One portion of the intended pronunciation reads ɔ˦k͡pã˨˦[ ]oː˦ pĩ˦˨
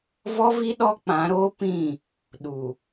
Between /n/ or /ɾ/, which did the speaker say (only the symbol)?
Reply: ɾ